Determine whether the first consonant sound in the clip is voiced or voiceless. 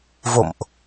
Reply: voiced